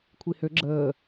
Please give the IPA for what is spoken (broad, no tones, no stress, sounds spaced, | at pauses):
kʷʰ i h ø ɡ͡ǁ əː